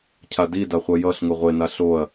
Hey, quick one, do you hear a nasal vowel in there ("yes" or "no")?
no